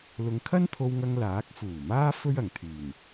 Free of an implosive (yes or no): yes